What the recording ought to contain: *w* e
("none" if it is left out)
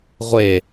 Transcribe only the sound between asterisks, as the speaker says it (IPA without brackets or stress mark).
ʁʷ